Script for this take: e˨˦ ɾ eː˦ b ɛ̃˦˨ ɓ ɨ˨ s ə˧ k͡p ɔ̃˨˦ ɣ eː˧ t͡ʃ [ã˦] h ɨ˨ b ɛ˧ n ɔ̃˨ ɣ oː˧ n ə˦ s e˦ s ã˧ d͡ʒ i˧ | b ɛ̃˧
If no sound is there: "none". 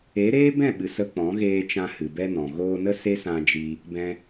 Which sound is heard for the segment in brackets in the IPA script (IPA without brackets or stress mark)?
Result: ã˧